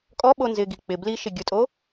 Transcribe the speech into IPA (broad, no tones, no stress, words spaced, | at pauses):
kʼɔɓo nzɪ ɡik͡pɪ bliʃɪ ɡʲʊtʼo